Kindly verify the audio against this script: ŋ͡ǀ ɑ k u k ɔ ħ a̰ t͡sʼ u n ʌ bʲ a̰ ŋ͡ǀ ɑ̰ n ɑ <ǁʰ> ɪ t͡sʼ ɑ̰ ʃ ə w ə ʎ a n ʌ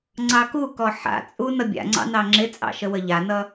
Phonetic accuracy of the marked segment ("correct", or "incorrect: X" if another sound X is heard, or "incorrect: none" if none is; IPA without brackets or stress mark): incorrect: ŋ͡ǁ